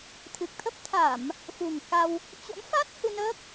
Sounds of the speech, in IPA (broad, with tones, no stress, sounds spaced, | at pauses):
t̪ʰ ɨ˨˩ k̚ t̪ʰ ə˦˥ p̚ t̪ʰ a˧˩˨ m | f ṳ˨˩ ŋ k a˧ w | t͡ɕ o̰˧˥ m f a˦˥ t̚ h ɨ˧ n əː˦˥ k̚